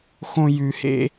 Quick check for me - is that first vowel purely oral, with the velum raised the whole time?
no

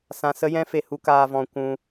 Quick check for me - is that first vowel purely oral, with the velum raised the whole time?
no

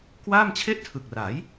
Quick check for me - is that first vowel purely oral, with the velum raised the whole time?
yes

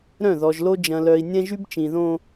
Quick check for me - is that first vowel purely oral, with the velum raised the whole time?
no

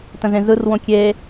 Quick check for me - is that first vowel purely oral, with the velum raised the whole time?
no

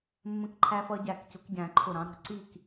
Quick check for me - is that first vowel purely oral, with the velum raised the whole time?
no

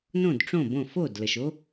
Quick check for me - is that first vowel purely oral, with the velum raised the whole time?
no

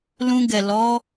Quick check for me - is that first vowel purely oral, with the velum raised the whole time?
no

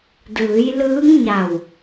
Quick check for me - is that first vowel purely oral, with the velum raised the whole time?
yes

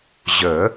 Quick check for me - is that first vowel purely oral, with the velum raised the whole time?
yes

